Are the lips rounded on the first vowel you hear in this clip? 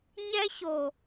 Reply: no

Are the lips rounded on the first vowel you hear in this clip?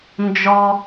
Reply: yes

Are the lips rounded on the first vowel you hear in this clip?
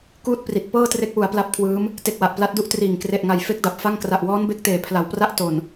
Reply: yes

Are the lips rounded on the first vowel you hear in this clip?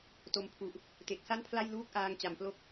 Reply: yes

